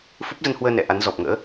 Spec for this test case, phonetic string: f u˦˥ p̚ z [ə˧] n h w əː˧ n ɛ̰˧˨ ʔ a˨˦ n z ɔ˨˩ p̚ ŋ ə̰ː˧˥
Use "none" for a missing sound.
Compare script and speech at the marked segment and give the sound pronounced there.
ə˧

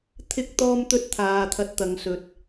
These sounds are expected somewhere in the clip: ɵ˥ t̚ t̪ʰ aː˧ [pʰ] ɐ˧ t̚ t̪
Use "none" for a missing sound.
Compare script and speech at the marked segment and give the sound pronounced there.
t̪ʰ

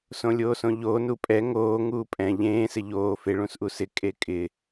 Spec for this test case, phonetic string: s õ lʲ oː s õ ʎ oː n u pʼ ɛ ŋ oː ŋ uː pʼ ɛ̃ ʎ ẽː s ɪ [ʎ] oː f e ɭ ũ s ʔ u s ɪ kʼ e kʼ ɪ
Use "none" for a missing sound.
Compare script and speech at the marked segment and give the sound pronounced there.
ʎ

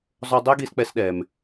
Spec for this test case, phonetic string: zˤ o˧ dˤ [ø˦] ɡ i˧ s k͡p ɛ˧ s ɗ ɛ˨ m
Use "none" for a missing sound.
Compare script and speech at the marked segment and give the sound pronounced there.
ɛ˦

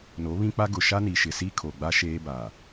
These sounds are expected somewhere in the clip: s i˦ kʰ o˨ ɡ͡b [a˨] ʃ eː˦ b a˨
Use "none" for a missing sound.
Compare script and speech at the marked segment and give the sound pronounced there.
a˦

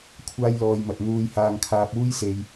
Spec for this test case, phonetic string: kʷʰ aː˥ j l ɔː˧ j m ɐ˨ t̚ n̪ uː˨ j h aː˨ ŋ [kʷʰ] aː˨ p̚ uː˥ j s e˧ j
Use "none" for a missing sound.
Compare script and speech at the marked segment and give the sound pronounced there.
kʰ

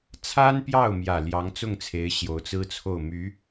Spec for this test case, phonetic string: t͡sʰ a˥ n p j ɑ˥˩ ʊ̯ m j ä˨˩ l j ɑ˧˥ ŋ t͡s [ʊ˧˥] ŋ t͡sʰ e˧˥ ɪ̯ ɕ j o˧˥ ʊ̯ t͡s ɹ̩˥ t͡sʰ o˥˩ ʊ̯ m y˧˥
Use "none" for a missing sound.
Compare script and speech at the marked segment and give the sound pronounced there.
ʊ˥˩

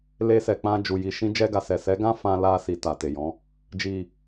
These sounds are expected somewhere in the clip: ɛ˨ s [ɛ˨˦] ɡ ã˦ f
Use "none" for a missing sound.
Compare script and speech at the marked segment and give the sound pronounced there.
ɛ˨˦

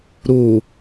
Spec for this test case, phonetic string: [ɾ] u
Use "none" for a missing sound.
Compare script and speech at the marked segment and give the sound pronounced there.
ɾ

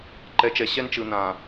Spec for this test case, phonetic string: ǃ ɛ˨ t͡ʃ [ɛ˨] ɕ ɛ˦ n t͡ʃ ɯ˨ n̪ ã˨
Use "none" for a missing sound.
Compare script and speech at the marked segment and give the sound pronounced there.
ɛ˨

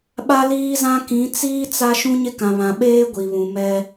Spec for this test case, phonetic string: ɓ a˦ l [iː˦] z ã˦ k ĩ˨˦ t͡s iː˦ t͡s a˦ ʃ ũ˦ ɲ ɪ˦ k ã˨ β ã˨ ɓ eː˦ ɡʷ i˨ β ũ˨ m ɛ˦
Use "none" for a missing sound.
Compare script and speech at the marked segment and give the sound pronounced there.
iː˦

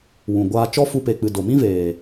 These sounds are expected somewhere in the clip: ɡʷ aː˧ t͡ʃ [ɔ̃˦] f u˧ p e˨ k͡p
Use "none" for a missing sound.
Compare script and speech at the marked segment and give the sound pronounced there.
ɔ˦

